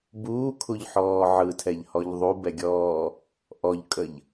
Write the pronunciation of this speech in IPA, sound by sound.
b uː kʰ u ʎ ħ ɔː ʕ ɯ tʰ ɛ ʎ h ɔ ʎ ðˤ u b ɛ ɡʲ ɔː | ʔ ɔ ʎ kʼ ə ʎ

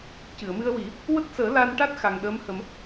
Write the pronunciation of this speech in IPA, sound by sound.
c ɨ˨˩˨ ə̯ m ɨ˧ ə̯ w i˨˩˦ | w ə˦˥ k̚ s əː˨˩˦ l a˧ n ʈ a˦˥ t̚ x a˨˩ ŋ ɗ əː˧˥ m h ə˨˩˦ m

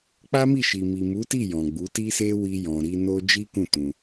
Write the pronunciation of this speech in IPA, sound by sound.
k͡p a˦ m i˦˨ ʃ i˨ m i˨ m u˨˦ t i˦˨ j ɔ̃˨ ɡ͡b u˨˦ t i˦ s e˦ w i˧ j ɔ̃˨ ɾ i˧ n o˦ d͡ʒ i˦ k ũ˦˨ t ũ˧

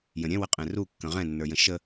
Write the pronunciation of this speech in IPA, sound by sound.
j ə̃ ɾʲ ɛ̃ w ə qʼ ɛ̃ r u kː ə̃ ʁ ɛ̃ nː ə˞ j ə̃ ʃ ə

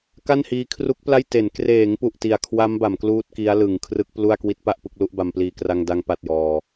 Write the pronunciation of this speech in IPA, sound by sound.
k a˥˩ n h iː˧ kʰ r u˦˥ k̚ p l a˥˩ j t e˩˦ n k r eː˩˦ ŋ p u˨˩ ʔ t i˨˩ a̯ kʰ w a˦˥ m b a˩˦ m k l uː˥˩ t̚ k i˦˥ a̯ l ɯ˩˦ ŋ kʰ r ɯ˦˥ k̚ p l u˥˩ a̯ k w i˦˥ t̚ p a˥˩ ʔ p ɯ˥˩ k̚ l u˦˥ ʔ b a˧ m p l iː˧ k r a˧ ŋ d a˧ ŋ p a˥˩ t̚ j ɔː˧

